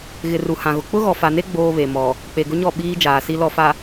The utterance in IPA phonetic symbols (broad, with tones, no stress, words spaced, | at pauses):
ɣɪ˨ru˨hã˨ɣʊ˨ k͡pʊ˦ ɣɔ˨fa˨ne˦ ɡ͡boː˦βe˨ mɔ˨ | k͡pe˨ɡʊ˦ɲɔ˦˨ ɓiː˦d͡ʒaː˨si˦ lɔ˨fa˨